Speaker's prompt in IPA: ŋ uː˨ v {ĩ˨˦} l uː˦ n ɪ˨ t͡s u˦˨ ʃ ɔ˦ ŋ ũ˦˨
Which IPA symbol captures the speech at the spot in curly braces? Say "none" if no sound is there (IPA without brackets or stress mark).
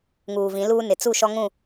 ĩ˨˦